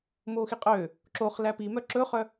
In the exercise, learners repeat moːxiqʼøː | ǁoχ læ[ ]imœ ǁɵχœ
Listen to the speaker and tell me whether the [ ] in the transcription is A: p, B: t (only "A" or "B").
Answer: A